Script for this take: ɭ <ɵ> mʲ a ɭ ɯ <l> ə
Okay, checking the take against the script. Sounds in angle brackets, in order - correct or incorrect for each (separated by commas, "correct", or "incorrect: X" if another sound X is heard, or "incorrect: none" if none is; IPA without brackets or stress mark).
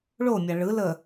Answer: incorrect: o, correct